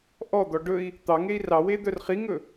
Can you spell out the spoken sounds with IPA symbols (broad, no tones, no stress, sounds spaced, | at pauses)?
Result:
ʔ ɔ d̪ ɔ ɖ ɵ i̯ | t̪ ɑ ŋ e i̯ r ɑ w e d̪ œ r χ i ŋ ɵ